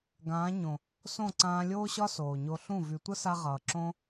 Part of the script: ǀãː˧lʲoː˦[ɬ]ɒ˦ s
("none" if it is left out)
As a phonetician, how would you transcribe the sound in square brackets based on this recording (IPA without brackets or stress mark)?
ɕ